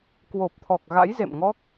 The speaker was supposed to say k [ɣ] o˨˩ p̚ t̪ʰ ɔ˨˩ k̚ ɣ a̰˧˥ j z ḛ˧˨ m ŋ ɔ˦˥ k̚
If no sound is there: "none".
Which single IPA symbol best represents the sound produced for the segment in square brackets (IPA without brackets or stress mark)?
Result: w